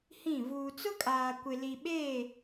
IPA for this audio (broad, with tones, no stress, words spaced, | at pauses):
hĩ˦˨ vuː˨t͡sʊ˦kʼaː˨ kʷɪ˨li˨ɓeː˦˨